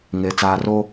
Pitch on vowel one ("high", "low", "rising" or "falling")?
low